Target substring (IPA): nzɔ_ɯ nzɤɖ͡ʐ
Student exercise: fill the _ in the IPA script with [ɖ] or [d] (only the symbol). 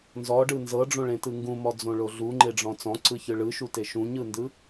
ɖ